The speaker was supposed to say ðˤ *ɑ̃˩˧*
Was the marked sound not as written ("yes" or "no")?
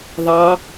yes